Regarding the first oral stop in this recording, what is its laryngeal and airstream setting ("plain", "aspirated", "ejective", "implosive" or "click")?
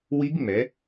plain